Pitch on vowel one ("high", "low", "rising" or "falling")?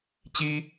high